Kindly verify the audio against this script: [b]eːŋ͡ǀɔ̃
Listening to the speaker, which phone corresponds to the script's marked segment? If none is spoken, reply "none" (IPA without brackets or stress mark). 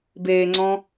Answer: b